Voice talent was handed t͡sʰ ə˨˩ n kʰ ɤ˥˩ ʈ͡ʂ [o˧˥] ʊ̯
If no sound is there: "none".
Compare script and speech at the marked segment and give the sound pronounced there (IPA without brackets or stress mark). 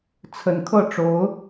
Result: o˧˥